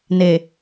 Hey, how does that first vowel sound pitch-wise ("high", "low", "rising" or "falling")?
low